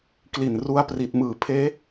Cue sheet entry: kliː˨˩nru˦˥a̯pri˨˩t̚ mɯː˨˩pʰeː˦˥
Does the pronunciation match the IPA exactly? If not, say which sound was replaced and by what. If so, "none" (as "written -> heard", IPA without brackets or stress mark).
iː˨˩ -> i˨˩